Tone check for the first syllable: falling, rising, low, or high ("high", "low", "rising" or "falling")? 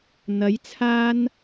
rising